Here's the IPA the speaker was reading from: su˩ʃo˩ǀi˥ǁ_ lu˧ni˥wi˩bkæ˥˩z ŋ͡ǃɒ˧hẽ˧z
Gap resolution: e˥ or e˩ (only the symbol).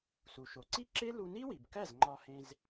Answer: e˥